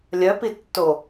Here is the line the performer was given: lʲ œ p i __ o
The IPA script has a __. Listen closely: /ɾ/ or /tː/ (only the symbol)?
tː